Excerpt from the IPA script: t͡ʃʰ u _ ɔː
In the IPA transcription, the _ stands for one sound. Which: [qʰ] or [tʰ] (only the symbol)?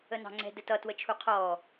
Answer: qʰ